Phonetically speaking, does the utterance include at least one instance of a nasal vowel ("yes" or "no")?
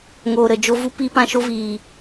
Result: yes